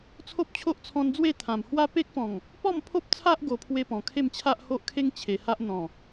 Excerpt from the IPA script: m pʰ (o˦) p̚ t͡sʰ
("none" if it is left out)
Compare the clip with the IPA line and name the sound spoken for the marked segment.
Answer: o˦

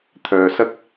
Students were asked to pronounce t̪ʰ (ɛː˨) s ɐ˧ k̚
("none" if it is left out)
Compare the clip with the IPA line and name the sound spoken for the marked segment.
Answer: œː˨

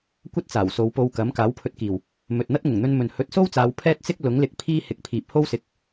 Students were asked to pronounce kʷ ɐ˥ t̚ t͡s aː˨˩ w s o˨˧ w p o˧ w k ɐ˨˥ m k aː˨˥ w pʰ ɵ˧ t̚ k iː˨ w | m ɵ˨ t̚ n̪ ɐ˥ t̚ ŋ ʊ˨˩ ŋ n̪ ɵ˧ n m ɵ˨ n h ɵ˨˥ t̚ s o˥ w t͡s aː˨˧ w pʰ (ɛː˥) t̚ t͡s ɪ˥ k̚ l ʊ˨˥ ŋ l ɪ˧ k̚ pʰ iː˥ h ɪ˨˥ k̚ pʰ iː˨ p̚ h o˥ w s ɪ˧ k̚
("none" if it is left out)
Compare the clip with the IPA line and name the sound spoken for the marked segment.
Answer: ɛː˥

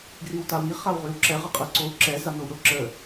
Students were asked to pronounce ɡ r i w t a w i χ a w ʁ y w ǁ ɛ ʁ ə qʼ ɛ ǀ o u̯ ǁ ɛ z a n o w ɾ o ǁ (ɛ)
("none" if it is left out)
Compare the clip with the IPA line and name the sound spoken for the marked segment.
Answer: ə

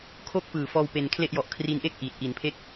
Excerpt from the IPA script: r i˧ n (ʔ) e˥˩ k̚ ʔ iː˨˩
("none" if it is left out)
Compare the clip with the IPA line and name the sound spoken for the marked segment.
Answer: ʔ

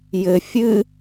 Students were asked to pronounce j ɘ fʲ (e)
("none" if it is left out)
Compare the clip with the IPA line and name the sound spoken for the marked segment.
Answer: ɨ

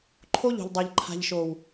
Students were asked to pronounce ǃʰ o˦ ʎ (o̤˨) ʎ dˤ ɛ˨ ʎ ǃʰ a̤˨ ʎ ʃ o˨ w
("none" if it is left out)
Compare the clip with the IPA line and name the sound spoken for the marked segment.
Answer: o̤˨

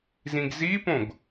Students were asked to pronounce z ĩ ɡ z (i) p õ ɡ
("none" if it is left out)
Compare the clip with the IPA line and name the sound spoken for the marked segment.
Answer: i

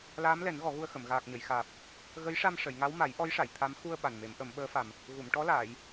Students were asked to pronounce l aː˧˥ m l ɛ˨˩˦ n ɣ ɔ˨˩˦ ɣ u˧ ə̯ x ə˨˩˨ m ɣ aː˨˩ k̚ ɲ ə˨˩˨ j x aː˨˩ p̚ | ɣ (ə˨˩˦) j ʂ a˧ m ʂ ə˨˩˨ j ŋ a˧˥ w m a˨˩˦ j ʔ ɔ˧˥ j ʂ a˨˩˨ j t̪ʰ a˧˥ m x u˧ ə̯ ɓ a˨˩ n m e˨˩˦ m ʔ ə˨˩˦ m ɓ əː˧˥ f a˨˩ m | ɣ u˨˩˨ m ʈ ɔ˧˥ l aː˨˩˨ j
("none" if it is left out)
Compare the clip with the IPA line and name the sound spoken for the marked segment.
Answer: ə˧˥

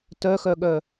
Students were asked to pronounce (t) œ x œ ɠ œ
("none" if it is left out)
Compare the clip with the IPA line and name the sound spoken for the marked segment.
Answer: t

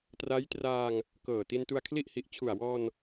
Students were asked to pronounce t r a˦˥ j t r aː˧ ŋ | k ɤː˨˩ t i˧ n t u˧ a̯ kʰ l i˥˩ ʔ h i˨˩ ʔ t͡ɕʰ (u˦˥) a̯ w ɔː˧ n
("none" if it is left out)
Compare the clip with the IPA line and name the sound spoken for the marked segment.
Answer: u˨˩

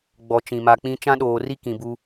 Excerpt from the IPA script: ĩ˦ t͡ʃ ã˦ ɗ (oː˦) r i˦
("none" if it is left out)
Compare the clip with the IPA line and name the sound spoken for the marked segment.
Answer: oː˨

